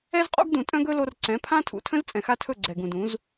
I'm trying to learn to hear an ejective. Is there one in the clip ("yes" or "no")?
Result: yes